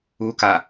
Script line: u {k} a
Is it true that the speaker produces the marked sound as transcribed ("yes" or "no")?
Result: yes